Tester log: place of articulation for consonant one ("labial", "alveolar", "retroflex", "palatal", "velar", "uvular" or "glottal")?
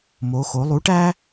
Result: labial